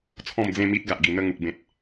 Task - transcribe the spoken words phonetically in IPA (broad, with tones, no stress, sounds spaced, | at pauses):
t͡sʰ ɔ̃˥˧ m d͡z ẽ˥˧ m i˦ t̚ ɡ a˨ ʔ ɡ i˨˩ n̪ ə˥˧ ŋ u˨ k̚ b ẽ˨ t̚